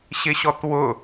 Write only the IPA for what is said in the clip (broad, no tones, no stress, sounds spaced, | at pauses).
ɕ ɪ ɕ ɔ t w ʊ